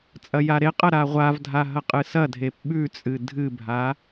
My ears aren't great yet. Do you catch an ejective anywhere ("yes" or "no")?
yes